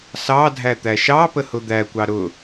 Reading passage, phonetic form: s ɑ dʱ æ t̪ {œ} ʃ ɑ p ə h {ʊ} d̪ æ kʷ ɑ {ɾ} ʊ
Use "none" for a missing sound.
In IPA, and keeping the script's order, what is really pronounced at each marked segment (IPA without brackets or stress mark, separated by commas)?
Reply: æ, ʊ, ɾ